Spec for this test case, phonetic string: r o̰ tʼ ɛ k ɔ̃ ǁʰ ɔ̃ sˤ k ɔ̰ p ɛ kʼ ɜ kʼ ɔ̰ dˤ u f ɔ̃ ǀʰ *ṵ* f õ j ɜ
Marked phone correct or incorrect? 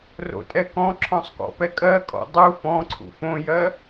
correct